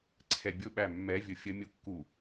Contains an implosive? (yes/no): yes